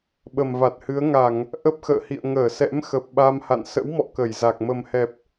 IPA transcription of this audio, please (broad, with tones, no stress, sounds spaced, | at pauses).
ɓ ə˨˩ m v a˨˩ t̚ h ɨ˨˦ ə̯ ŋ a˧˩˨ ŋ | ʔ ə˦˥ p̚ x ə̰ː˧˨ h ḭ˧˨ ə̯ ŋ əː˧˩ s ɛ̰˧˥ m x ə˨˩ p̚ ɓ a˧ m h a̰˧˨ n s ə̰˧˥ w m ɔ̰˧˨ k ə˧˩ j z a˨˩ k̚ m ə˨˩ m h ɛ˨˩ p̚